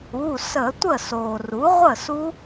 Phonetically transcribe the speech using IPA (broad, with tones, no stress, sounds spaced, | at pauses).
u˩˧˩ s ə˧˩˧ tʷ ə˥˩ s oː˩ r u˩˥ ʁʷ ə˥˩ s u˦˥